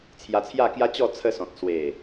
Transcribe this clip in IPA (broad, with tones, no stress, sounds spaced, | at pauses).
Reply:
t͡sʰ j a˧ t͡sʰ j a˥˧ k j a˦ t͡ɕ ɔ˥˧ t͡sʰ ə˧ s ɔ̃˨ t̚ s w e˨˩